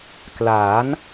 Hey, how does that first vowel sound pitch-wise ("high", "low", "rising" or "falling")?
rising